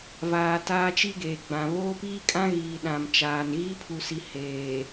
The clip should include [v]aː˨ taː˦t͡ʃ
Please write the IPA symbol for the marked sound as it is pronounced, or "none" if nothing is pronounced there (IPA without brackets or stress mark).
v